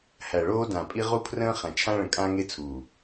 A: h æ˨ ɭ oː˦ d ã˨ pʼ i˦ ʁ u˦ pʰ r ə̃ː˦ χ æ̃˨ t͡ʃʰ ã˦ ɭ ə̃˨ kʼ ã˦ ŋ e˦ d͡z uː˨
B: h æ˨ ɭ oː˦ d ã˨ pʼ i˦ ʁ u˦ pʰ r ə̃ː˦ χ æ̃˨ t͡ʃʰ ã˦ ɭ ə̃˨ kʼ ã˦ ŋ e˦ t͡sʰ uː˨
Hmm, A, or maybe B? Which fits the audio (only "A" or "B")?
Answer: B